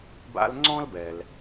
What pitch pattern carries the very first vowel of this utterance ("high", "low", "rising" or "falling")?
high